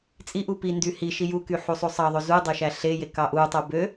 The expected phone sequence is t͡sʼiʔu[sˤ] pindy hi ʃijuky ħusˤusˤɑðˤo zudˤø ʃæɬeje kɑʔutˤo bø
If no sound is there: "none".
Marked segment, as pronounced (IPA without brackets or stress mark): none